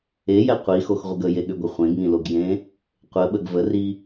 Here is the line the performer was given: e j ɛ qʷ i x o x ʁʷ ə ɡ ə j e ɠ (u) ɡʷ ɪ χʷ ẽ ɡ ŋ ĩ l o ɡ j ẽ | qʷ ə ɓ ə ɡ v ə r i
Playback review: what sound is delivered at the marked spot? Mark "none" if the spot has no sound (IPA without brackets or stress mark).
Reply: ʏ